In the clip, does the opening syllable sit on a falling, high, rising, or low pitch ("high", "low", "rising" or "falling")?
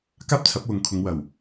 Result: high